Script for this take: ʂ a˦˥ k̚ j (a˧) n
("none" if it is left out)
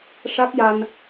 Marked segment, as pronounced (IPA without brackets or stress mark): a˧